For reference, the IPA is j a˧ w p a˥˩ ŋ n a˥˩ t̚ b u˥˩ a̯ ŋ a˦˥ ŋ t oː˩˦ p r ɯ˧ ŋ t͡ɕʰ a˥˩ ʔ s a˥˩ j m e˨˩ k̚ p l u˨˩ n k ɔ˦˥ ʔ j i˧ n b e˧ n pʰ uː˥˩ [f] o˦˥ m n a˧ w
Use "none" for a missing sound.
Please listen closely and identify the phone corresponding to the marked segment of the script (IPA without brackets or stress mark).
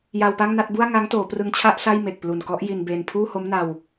h